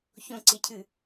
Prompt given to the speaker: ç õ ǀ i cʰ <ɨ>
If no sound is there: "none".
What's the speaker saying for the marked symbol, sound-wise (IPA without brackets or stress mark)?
ɨ